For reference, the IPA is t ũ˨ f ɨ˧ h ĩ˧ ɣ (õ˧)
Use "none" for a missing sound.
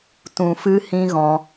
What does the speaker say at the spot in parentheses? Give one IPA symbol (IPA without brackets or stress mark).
ɔ̃˧